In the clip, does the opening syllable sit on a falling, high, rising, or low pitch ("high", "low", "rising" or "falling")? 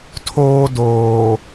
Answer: high